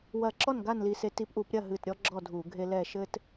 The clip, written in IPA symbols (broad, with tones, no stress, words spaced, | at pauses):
wɐ˧˩ǁɔ˥˩n ɡa˥˩nli˧˩se˧˩˧t i˧˩˧pʔu˧˩˧pɾʲɐ˥˩ ɦɨ˧˩tɾʲɔ˦ ɡ͡ǁɔ˥˩dʱu˧˩˧ɡʱe˦lɛ˥˩ ʃɘ˦t